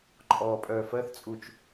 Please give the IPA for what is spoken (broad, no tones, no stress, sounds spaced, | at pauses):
ǃʼ ɔː pʼ œː f ɜ θ t͡sʼ u t͡ʃ